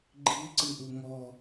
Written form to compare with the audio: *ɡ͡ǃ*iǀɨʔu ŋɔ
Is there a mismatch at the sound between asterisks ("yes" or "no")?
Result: no